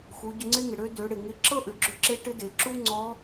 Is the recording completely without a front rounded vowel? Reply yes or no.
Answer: no